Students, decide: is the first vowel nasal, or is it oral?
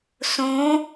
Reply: nasal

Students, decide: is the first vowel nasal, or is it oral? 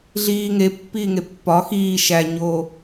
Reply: oral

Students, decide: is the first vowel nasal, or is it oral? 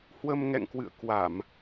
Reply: oral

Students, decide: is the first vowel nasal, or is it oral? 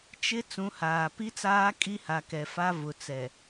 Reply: oral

